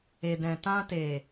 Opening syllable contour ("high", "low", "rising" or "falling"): low